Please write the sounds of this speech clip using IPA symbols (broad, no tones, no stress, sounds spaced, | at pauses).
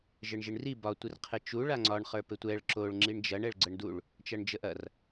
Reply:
ʒ ɘ ɳ ʒ i ɳ r i b ɒ tʷ i r qʰ ɘ t͡ʃ u ɭ a ŋ͡ǀ ɒ ɳ χ ə˞ p ɘ tʷ ɛ ɭ ǁ o ɭ ŋ͡ǁ i ɳ d͡ʒ ɐ ɳ ɛ ɭ ɡ͡ǀ ə ɳ d u ɭ | t͡ʃ ɐ ɳ d͡ʒ ə ʔ ɐ r